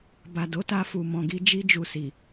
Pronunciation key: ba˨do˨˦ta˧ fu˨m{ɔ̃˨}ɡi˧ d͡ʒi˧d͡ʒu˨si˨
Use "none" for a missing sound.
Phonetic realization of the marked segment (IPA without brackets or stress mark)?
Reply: ɔ̃˨